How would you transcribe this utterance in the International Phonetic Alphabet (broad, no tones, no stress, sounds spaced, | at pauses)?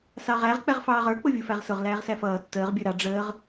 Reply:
s ɑ ʁ æ ʁ k͡p ɛ ʁ f ɑː ʁ ə˞ k͡p ʊ vʲ u f æ ʁ s ʊ ʁ l æː ʁ s æ f ʌː tː əː ʁ bʲ ə˞ ɾ ɑ ɖ͡ʐ əː ʁ